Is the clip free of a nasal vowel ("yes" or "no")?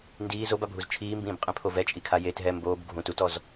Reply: no